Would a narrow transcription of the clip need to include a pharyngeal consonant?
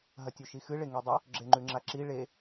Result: no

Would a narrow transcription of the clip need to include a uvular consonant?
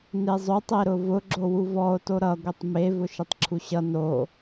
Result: no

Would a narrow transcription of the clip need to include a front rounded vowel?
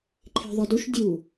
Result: no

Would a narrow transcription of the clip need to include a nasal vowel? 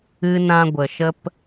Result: yes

